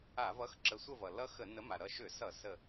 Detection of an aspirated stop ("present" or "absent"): absent